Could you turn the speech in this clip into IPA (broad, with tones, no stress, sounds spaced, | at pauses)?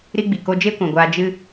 ɾ i˦ ɡ͡b i˨ k o˧ d͡ʒ e˦ kʷ ã˨ ɡʷ aː˧ d͡ʒ ɨ˦